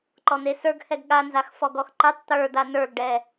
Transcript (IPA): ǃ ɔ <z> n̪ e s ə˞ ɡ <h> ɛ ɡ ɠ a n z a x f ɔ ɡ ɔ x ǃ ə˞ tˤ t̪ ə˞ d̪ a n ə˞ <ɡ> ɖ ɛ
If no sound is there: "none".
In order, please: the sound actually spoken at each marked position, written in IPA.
none, h, ɡ

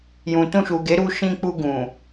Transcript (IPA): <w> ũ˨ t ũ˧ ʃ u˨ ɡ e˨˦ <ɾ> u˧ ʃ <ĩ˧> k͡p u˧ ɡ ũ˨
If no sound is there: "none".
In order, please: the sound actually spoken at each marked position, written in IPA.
j, ɾ, ĩ˧

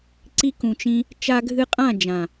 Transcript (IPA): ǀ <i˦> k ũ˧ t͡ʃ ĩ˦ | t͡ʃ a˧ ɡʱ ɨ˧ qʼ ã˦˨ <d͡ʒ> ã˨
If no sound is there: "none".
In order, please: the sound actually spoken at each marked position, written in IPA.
i˧, d͡ʒ

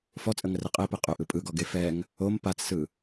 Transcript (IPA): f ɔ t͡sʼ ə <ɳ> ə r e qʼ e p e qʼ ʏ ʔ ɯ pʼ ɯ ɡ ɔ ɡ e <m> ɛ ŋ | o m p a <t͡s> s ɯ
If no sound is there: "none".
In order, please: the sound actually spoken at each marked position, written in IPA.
ŋ, f, t͡s

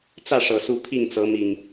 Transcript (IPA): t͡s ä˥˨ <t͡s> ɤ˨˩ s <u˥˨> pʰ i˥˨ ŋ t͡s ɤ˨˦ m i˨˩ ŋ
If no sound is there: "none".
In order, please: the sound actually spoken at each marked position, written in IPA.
ʂ, u˨˦

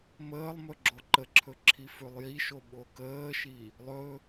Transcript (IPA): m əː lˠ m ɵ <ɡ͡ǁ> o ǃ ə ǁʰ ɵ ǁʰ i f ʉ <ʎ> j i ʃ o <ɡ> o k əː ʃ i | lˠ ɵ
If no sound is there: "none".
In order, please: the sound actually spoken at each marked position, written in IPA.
ɡ͡ǁ, lˠ, ɓ

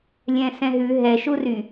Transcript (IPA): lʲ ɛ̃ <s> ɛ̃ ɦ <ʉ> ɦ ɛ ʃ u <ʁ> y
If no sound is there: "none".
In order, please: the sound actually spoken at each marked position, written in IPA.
s, ʉ, r

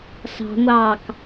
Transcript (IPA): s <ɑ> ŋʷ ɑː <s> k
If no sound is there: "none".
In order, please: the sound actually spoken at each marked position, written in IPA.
ɑ̤, none

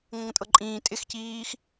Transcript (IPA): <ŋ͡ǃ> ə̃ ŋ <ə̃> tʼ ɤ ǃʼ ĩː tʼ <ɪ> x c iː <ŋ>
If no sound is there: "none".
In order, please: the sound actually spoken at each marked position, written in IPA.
ŋ, ə̃, ɪ, x

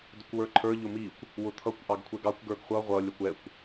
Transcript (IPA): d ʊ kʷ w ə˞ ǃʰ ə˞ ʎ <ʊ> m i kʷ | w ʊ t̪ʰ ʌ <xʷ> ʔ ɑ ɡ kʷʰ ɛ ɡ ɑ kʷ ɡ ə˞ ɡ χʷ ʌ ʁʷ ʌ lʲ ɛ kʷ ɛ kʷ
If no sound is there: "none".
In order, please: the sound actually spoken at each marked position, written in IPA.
ʊ, kʷ

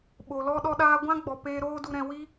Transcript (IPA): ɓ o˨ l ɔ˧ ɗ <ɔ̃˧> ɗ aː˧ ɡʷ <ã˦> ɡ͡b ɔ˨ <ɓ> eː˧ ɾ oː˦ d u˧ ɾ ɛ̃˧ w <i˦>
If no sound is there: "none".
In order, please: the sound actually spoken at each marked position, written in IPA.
ɔ˧, ã˦, p, i˦

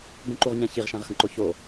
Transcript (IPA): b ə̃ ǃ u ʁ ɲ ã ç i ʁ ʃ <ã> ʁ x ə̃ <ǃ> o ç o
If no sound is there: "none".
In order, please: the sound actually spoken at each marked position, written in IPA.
ã, ǃ

